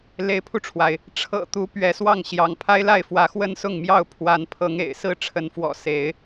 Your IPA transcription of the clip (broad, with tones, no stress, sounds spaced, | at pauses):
l e˨˦ ɪ̯ pʰ u˧ ʈ͡ʂʰ w a˩ ɪ̯ | ʈ͡ʂʰ ɤ̰˨˩ t̪ u˨˦ p ɥ ɛ˨˦ s w ɑ˥˨ ŋ ɕ j ɑ˨˦ ŋ pʰ a˦ ɪ̯ l a˥˨ ɪ̯ f w ä˨˦ x w ə˦ n s ʊ˥˨ ŋ m j ɑ˥˨ ʊ̯ pʰ w a˨˦ n pʰ ɤ˨˦ ŋ ḛ˨˩ ɪ̯ s ɹ̩˥˨ ʈ͡ʂʰ ə˨˦ n f w ɔ̰˨˩ s e˨˦ ɪ̯